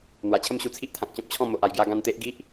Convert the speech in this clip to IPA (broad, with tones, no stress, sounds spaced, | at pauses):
n̪ w a˨˩ t͡ɕʰ ə˦ m ɕ u˧ t͡sʰ i˦ ʔ t̪ʰ ã˨ k̚ t͡ɕ ɔ̃˦ p̚ t͡ɕʰ ɔ̃˥˧ m o˨ ʔ a˨˩ j ɡ j a˧ ɡ ã˧ n t̪ e˦ ʔ ɡ i˦ ʔ